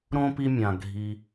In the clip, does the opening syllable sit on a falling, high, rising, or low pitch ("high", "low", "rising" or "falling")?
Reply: high